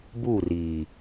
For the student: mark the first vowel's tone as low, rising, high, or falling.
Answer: falling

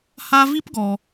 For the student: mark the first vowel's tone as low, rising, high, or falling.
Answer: high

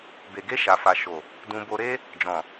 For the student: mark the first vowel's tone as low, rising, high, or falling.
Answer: low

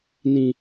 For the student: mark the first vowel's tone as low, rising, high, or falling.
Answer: high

